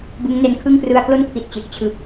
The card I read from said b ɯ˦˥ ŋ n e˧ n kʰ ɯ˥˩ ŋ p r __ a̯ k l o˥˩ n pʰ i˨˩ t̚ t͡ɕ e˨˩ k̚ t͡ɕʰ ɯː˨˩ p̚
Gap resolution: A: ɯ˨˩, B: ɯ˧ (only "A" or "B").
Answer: B